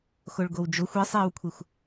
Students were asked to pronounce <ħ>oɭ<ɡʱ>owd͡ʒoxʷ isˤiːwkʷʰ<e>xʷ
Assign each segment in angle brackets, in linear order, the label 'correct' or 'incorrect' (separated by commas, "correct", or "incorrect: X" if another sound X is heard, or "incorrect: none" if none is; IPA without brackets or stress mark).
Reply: incorrect: x, incorrect: ɡ, correct